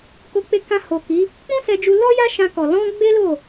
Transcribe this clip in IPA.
k o˧ k͡p e˧ k ã˧ h o˨ k i˨˦ | k͡p ũ˦ s ɛ˧ d͡ʒ u˧ l ɔ˦ j a˦ ʃ ã˧ k ɔ˨ l ɔ̃˧ ɡ͡b e˦ l o˦˨

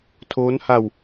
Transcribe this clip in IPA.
tʰ oː˦˥ n h a˧ w

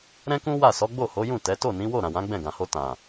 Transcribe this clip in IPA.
ɾ ɛ̃˦ k ũ˦ w a˦˨ s ɔ˨˦ ɡ͡b o˦˨ h o˨˦ j ũ˦˨ t ɛ˨˦ t o˦˨ n ĩ˨˦ w o˦˨ ɾ ã˨ w ã˨˦ ɡ͡b ɛ̃˦˨ ɡ ã˨ h o˧ t ã˨

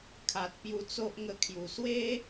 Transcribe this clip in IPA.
kʰ a˨ t̚ p j u˧ t͡s o˦ ʔ ŋ ə˧ kʰ j u˨˩ s w e˦

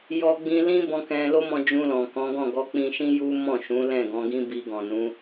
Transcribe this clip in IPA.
j ɔ˧ ɡ͡b ĩ˧ l ĩ˦ b ɔ̃˦ k ɛ̃˦ l o˦ m ɔ̃˧ d͡ʒ ũ˧ l ɔ̃˨ k ɔ̃˨˦ ɡ ɔ̃˦˨ ɡ ɔ˧ k͡p ĩ˧ ʃ ĩ˦ j u˦ m ɔ̃˦˨ ʃ ũ˨˦ l ɛ̃˦˨ ɡ ɔ̃˨˦ ɡ ĩ˦ b i˧ ɡ ɔ̃˨ n ũ˨˦

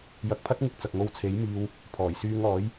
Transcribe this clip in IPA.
j ɐ˨ k̚ pʰ ɐ˥ t̚ ŋ ɪ˧ k̚ t͡s ɐ˨ k̚ ŋ o˧ w t͡sʰ e˨˥ j m iː˧ w | pʰ ɔː˨˩ j s yː˧ ŋ ɔː˨˥ j

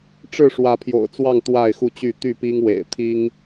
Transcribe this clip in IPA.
ʈ͡ʂ ɻ̩˥˨ ʂ w ä˨˦ pʰ j o̰˨˩ ʊ̯ t͡s w ɑ˥˨ ŋ t̪ w a˥˨ ɪ̯ x u˥˨ t͡ɕ y˥˨ t̪ y˥˨ p i˦ ŋ w ḛ˨˩ ɪ̯ t̪ʰ i˦ ŋ

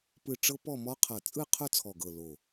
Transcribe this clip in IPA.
p ɯ˥˧ ʈ͡ʂ ɤ˥ p ɔ˥˧ m ɔ˥ qʰ ɤ˧˩ t͡sʼ ɯ˥˧ qʰ ʊ˥˧ t͡sʰ ɔ˧˩ ɡ ɤ˧˩ l o˧˩

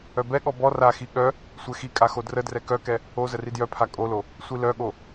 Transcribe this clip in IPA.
œ b ɛ ɠ ɔ b ɔ r a x i ɠ œ | sʷ ɛ x i kʼ a x o d r ə d r ɛ k œ k ɛ | o z ə r i d j œ pʰ a kʼ o l o | sʷ i l œ ɠ o

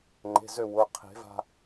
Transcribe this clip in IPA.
ŋ͡ǃ e̤˩˧˩ z ø˧˩ w ʊ˩˧˩ qʰ e̤˨˩˦ v a̤˧

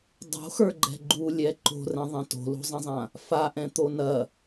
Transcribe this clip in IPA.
dˤ o̤ x ə˞ ɡ͡ǃ ɛ̤ ɡ͡ǃ u lʲ ɛ ǃ o̤ r ɛ̃ ðˤ ɛ̃ t o̤ l o̤ zˤ ɐ̃ zˤ ã | f a ʔ ɛ̃ t̪ o n ɐ

